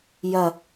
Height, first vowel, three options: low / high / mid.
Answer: low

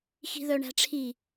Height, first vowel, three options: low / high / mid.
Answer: high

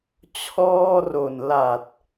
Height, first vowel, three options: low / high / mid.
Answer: mid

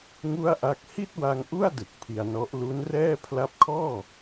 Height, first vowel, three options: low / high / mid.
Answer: high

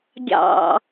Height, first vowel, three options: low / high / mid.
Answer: low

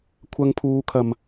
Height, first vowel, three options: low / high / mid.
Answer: low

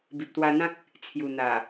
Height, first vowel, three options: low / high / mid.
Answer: high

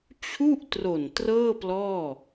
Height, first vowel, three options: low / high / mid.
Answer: high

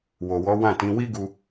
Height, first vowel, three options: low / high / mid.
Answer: mid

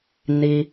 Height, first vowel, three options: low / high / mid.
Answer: high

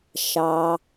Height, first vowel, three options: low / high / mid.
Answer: low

